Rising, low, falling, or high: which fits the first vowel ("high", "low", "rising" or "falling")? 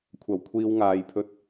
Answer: low